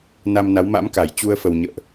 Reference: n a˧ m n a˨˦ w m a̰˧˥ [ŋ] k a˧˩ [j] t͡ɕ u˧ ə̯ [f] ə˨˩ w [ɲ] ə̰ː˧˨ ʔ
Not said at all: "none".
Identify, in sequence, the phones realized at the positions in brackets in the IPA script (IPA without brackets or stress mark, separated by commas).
m, j, f, ɲ